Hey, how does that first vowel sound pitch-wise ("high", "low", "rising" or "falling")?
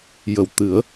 low